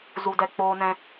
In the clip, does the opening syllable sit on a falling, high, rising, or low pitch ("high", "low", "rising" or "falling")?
low